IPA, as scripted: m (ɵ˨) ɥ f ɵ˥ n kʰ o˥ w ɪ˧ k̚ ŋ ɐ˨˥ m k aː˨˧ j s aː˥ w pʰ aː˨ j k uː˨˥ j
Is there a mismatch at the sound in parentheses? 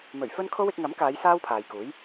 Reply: yes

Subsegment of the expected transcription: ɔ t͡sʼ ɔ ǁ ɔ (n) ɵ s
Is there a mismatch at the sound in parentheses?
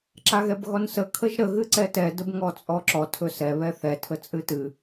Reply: yes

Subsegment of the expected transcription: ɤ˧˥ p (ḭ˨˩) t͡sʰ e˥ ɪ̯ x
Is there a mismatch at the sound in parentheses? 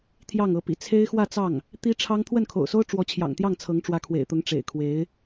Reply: no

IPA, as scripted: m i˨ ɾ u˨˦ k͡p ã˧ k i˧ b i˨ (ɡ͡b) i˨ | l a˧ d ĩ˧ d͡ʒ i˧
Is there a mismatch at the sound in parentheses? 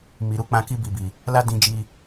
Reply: yes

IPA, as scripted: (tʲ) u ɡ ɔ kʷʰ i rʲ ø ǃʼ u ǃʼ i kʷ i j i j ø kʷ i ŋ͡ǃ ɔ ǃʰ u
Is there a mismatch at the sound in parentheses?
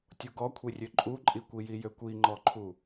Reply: no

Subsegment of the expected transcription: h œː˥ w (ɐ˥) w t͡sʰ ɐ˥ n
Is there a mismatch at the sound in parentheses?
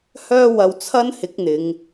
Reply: yes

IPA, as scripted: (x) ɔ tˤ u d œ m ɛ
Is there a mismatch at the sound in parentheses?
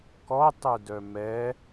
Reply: yes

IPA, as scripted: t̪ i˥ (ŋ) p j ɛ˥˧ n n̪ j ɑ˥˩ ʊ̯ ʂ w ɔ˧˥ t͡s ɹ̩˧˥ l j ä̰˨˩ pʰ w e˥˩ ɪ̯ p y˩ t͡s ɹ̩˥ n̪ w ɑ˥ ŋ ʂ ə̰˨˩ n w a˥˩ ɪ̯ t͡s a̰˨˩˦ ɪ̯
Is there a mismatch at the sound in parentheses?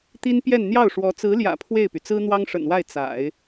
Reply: yes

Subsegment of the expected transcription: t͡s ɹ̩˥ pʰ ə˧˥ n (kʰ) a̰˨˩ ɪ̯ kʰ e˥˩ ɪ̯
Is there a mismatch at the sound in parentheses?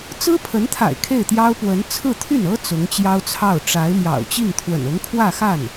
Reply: yes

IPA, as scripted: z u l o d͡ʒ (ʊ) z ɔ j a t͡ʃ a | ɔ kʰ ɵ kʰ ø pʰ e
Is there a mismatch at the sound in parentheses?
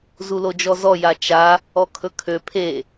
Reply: yes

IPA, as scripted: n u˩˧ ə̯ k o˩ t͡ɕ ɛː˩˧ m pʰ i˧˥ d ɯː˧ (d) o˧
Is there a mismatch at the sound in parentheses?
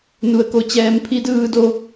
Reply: no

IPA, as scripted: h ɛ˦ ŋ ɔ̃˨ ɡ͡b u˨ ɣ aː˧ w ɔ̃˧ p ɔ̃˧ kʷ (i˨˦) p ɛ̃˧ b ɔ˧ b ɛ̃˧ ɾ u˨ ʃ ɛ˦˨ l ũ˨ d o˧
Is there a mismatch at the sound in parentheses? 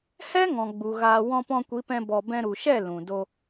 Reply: no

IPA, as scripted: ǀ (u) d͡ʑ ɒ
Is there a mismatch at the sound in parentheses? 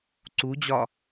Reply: no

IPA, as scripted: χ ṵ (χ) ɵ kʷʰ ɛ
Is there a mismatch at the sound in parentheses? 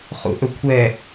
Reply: yes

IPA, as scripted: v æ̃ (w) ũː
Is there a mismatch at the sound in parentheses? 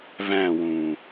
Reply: no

